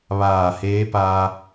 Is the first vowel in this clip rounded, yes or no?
no